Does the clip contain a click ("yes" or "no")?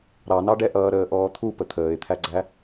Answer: yes